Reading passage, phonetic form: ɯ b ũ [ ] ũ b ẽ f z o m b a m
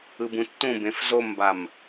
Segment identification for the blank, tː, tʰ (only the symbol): tː